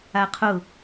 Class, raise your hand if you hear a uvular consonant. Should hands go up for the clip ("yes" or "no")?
yes